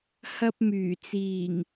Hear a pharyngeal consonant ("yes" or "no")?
no